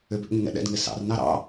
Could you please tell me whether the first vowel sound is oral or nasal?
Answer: oral